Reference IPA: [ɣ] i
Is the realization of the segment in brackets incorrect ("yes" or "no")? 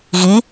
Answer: no